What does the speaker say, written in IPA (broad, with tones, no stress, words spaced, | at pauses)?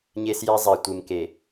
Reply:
ɲe˦sjɛ˦ zˤɛ˨ tʷɨ˨mke˨